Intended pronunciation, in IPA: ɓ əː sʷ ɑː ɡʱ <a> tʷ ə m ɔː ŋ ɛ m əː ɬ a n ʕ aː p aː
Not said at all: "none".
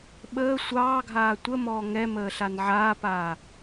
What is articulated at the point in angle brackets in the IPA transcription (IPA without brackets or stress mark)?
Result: aː